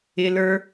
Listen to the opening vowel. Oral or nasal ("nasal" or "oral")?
oral